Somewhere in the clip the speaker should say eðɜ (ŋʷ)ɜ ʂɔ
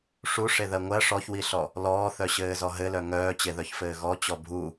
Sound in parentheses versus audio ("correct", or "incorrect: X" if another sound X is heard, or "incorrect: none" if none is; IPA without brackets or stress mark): correct